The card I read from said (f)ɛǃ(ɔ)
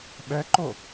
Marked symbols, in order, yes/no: no, no

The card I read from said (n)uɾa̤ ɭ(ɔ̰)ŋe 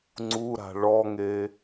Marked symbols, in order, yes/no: no, no

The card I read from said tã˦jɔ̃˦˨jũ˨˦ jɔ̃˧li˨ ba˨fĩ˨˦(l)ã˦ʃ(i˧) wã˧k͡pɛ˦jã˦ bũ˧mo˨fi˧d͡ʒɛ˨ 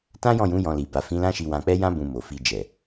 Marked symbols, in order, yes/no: yes, yes

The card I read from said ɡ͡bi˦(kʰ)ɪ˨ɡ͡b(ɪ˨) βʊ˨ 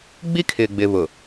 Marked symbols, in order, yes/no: yes, yes

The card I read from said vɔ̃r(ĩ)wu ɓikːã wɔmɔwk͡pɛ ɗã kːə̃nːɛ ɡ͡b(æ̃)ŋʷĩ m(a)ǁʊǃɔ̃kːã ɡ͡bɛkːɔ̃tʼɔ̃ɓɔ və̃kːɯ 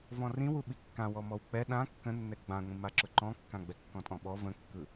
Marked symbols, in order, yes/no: yes, no, yes

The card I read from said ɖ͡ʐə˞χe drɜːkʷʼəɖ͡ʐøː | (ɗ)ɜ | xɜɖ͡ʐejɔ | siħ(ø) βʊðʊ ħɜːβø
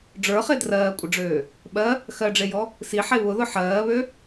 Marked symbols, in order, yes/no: no, no

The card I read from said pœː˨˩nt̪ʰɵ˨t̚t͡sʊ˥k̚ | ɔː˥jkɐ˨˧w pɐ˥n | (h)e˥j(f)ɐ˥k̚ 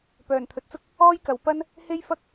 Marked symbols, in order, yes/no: yes, yes

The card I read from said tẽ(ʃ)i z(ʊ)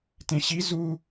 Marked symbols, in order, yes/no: no, no

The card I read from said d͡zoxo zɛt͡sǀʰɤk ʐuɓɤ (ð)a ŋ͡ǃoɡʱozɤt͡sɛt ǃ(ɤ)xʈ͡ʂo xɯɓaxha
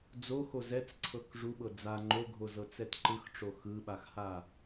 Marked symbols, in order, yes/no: no, no

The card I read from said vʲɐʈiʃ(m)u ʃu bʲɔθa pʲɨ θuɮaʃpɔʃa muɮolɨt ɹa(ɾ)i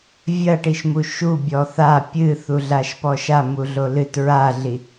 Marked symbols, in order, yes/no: yes, no

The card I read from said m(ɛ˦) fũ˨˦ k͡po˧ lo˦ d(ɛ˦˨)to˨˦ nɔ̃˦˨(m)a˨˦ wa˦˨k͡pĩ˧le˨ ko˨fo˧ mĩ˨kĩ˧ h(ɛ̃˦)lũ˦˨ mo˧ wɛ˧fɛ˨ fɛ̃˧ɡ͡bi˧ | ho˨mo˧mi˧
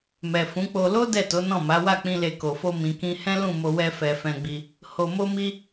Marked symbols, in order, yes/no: no, yes, yes, yes

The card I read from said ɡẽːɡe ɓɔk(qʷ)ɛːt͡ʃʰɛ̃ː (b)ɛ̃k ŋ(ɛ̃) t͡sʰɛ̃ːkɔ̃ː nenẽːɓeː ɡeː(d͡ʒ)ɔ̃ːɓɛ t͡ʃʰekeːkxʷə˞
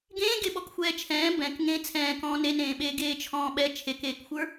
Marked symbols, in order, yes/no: no, yes, no, no

